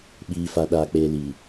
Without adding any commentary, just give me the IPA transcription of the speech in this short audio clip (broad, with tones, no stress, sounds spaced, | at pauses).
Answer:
ɓ iː˨ f a˨ ɗ aː˨ k͡p eː˨ l iː˨